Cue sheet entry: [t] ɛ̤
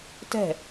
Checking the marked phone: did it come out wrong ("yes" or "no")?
no